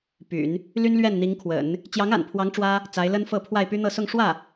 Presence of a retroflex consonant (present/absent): present